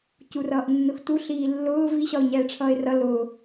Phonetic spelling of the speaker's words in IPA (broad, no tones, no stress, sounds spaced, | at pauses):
c u r ʌː ʔ nː ʊ x t u ɬ iː lː ʊː v i ɕ ɒ ʊ̯ ɲ ɛː ʈ͡ʂʰ ʌː ɪ̯ r ʌ l ʊː